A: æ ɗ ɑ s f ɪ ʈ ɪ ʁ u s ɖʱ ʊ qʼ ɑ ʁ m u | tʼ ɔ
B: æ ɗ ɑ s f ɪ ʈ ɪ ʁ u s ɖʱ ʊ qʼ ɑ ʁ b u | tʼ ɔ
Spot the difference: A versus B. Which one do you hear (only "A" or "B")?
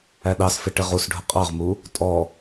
A